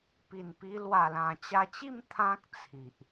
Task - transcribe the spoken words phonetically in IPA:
p i˨˩ n p i˧ l w a˨˩ l ã˨˩ t͡ɕ a˧ t͡ɕ i˥˧ m t̪ʰ ã˦ k̚ t͡sʰ i˨ ʔ

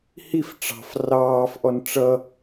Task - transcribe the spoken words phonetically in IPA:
h i f ʈ͡ʂ ɑ̤ f r ɑː f ʔ ɔ n ʈ͡ʂ ʌ

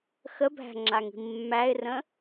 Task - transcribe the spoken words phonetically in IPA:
x ə bʱ æ̤ ŋ͡ǁ a ŋ i̤ mː æ ɪ̯ r ə̃

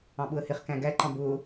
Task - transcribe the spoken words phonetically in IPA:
ɑ̃ ɓ ʊ ə̯ h ɪ χ k æ̃ ɡ æ ǃ ɑ̃ b ʊː

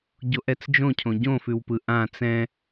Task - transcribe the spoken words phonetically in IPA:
ɟ o ʔ ɛ t͡s d͡ʒ õ cʰ õ ɟ õ f ʉ w p ɯ ʔ ã t͡s ɛ̃

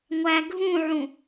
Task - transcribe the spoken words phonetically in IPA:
ŋʷ æ ɡʱ ũ ʕ ũ

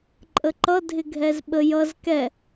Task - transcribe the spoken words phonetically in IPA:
ǃʼ ə ǃ ʌ dʱ ɪ ɡʱ ɛ z ɓ ə j ʌ z k ɛ

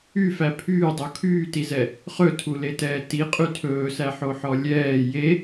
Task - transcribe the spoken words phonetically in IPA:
y f æ pʰ yː dˤ o kʰ yː t i z ɛ | χ ɵ tʰ u l e t ɛː t i qʼ y tʰ ɵː s æ ħ o ħ ɔ lʲ ɛː j e

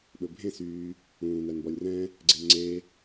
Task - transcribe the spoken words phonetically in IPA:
ɓ ɵ bʱ ẽ s yː | ũː n æ n b ɔ lʲ r ɛ̃ | ɡ͡ǀ e m ŋ͡ǀ e

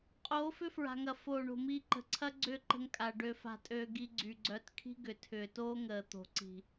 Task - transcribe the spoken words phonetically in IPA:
qʼ oː˨˦ f ʏ˦ f ɹ a̤˨ ŋ ɐ˨ f oː˨ ɳ o̤˨ m iː˧ ǃ ə̤˨ ǀʰ ɐ˦ ɡ͡ǀ ʏː˦˨ ǃ ə̤˧ ŋ kʼ a˨ ɖ ø˧ f a̤˧ tʼ øː˧ ɡ i˧ ɡ͡ǀ y˨ ɡ͡ǀ œ˧ t kʰ i̤˦ ɡ ʏ˨ tʰ ʏː˨ t oː˦ ŋ əː˨ t̪ o̤˨ ǀ i̤˨

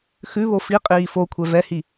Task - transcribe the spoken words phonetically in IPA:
x ʉ β o f i qʼ iː f o kʷʰ ɛ v ɛ h i

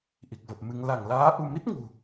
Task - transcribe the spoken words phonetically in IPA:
ʔ i˨˩ k̚ v ə˨˩ p̚ m ɨ˧ ŋ l a˧˩ ŋ l aː˨˦ ʔ u˧ m i˦˥ t̚ ŋ ṳ˨˩

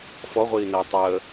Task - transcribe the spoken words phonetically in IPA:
f ɔ ʁʷ iː n əː tˤ əː

